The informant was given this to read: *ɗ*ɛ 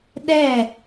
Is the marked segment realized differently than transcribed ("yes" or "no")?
no